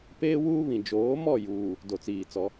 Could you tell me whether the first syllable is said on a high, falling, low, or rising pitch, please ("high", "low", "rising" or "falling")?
high